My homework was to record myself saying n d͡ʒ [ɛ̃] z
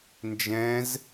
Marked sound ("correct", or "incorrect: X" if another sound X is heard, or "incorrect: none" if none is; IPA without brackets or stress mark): correct